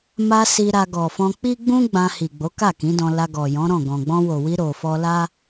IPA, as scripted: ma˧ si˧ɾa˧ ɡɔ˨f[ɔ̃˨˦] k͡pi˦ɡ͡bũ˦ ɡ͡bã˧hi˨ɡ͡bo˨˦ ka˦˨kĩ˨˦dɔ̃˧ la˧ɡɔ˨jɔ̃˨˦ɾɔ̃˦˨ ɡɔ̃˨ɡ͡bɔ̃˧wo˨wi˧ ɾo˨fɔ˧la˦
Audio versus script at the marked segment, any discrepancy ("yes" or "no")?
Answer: yes